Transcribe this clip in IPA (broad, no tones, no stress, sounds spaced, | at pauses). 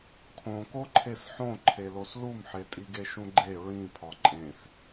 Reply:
kʰ õ k o ǃʰ e s ħ õ ǃʰ e l o s l u m ħ e tʼ i ɡ e ʃ ũ ɡ͡ǃ e ɹ ĩ pʰ ɒ ǃʼ ẽ s